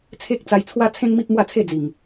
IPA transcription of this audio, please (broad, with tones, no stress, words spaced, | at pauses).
t͡sʰe˦k̚t͡sa˧jt͡sʰwa˦ t͡sʰẽ˦ŋmi˦p̚mwa˥˧ t͡sʰe˥˧d͡zi˨˩ŋ